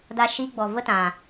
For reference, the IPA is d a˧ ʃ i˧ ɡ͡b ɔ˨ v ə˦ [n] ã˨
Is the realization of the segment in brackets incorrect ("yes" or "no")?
yes